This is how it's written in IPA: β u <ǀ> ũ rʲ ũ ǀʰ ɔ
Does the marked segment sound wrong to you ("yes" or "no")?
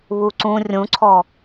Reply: no